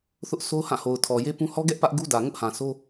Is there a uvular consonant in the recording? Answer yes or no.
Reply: no